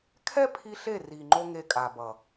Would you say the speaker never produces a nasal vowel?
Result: yes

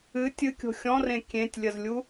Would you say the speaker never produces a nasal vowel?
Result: no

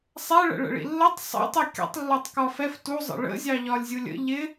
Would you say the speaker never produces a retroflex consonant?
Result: no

